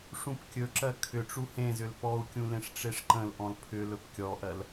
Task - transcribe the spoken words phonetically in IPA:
ʂũpkʲɵǁɜ kʰʏʈ͡ʂu hẽzʏl pɔu̯kʲũ lẽʂʈ͡ʂeʂǃə̃lʔɔ̃l pʰʏ lɵpkʲɔʔɜl

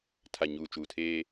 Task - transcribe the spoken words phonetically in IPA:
tʰa˨ ɲuː˨t͡ʃuː˨tʰeː˦

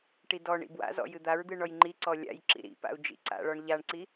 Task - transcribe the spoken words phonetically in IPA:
ʈidɔɳḭ bwa̰zɔ̰ jɨd̪aɹd̪ɨ ɳɔjŋ͡ǃiǀɔ lʲa̰jǁḭ ɾḭpa̰u̯ d͡ʒḭǀa̰ɭɔɳ ʎaɳǀi

